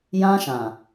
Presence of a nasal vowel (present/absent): present